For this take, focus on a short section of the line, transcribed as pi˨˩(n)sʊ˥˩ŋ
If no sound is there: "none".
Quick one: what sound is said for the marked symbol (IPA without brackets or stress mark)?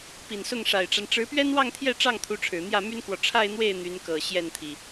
n